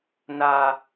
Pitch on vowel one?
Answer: low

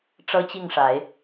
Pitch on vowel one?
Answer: high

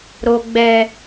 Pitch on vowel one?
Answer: low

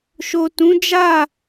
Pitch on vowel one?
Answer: low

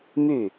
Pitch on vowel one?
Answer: falling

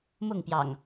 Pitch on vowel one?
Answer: falling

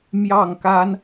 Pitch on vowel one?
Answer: falling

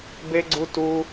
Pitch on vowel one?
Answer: high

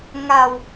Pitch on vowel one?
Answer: low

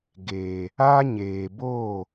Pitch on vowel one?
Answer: low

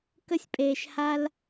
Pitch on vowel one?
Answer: high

